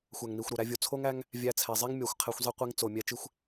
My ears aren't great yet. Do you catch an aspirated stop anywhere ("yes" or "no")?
yes